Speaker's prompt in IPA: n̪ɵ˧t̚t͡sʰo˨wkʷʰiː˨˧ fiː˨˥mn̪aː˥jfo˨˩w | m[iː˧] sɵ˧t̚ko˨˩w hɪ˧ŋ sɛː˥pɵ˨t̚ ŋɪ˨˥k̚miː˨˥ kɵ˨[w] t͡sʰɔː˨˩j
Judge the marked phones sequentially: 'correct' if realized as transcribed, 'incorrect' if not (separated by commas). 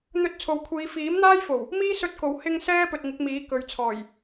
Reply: incorrect, incorrect